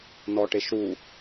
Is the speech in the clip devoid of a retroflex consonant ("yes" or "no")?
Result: no